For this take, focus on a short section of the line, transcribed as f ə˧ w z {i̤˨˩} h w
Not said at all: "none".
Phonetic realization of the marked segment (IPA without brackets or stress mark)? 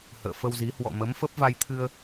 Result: i˨˦